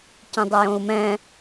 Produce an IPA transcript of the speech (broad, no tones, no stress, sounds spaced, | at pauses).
c ĩ dˤ ɯ j õ u̯ m ɛ̃